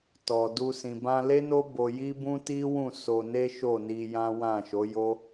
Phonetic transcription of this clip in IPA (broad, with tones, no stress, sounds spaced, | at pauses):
t ɔ˨ d u˧ s ĩ˨ b ã˧ l e˦ n o˦ b o˧ j i˦ b ũ˦ t i˦ w ũ˦˨ s o˧ n e˦ ʃ o˦˨ n i˧ j ã˦ w ã˦˨ ʃ o˨˦ j o˦